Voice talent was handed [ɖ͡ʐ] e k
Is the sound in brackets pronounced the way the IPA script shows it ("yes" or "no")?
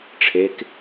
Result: no